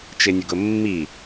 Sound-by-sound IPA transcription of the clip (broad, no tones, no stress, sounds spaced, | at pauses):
t͡ʃ ɪ nʲ ʊ ɡ ʊ mː i